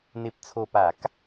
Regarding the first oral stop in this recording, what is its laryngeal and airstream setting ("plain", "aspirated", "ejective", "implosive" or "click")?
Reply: plain